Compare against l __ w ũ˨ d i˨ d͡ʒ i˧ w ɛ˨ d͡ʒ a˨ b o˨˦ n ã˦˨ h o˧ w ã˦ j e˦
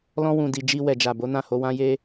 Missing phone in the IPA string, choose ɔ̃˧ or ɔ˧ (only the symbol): ɔ̃˧